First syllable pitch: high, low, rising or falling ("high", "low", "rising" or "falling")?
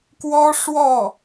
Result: high